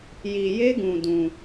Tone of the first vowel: low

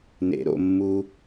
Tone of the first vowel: low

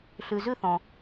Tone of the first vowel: low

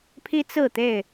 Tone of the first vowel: high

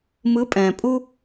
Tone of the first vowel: rising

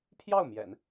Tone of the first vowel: falling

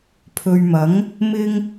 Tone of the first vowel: low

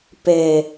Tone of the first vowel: low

